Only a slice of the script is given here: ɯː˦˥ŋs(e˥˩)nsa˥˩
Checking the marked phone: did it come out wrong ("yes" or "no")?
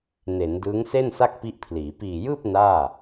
no